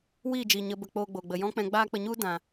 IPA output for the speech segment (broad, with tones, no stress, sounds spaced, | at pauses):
w iː˦˨ d͡ʒ iː˨ ɲ ə˧ b ə˧ k͡p oː˧ ɡ͡b oː˨ ɡ͡b ə˨ j ɔ̃˦ k͡p ɛ̃˧ ɡ͡b aː˦ k͡p ə˧ ɲ u˦ d ã˨